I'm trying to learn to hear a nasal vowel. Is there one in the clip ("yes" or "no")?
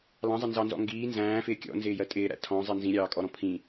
yes